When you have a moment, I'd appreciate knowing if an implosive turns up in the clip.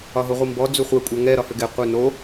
no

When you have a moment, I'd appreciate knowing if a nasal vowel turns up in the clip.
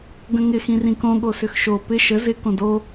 yes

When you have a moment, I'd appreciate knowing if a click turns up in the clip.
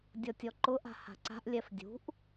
yes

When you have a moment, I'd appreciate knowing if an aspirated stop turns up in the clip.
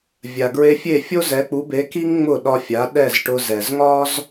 no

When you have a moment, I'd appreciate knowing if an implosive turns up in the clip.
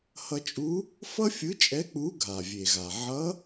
no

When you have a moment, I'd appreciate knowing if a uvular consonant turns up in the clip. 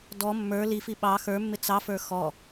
no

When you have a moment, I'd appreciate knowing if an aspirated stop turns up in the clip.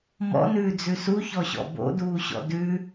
no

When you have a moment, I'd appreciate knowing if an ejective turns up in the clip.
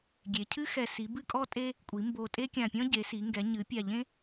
yes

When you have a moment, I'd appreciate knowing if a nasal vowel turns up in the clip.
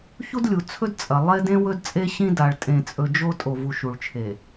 yes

